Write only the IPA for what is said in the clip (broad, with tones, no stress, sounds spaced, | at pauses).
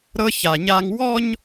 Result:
ɾ ɤ˦ ç a˨ ɲ a˦ ŋ w ɔ˦ ɲ